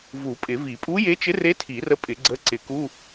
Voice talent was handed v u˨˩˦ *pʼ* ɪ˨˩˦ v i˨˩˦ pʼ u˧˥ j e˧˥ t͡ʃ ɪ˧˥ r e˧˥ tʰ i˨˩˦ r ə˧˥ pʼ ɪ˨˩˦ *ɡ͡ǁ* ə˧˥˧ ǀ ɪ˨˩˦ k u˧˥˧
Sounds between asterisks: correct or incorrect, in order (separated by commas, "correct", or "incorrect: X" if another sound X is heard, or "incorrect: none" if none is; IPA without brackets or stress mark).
correct, incorrect: ɡ͡ǀ